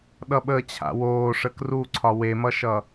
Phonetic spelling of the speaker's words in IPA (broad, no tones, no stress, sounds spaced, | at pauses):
ɗ ʌ ɓ əː t͡ɕʰ a̰ w oː ʂ ə k r u ǀʰ ɒ w e m ʌ ʃ ʌ